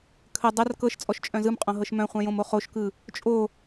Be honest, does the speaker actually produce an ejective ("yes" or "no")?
yes